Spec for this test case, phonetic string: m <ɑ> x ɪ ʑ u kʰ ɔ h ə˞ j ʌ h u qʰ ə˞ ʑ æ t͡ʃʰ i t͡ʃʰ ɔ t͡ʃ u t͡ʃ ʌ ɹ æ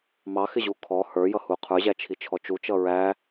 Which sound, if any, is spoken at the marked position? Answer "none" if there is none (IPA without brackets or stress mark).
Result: ɑ